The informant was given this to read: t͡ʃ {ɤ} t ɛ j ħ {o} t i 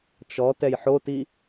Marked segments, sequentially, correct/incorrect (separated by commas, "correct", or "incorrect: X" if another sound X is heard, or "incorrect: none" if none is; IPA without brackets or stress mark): incorrect: ɔ, correct